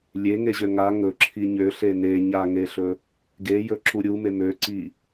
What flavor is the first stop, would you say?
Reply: click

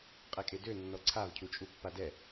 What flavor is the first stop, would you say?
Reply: ejective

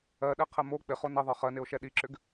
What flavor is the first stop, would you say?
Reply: implosive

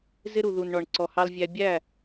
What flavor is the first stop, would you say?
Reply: click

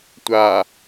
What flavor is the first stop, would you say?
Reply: plain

